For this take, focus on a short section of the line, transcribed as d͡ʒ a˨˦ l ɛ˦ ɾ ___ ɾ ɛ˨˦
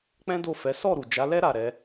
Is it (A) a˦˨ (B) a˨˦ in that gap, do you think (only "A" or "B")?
A